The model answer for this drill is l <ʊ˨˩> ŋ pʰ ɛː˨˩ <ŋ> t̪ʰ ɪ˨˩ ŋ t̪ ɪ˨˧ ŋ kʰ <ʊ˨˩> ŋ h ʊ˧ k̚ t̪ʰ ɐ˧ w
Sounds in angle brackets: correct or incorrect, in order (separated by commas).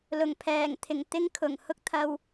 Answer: correct, correct, correct